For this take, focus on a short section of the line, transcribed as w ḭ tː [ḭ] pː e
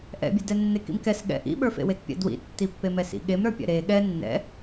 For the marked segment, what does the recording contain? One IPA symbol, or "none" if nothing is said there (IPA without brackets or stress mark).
i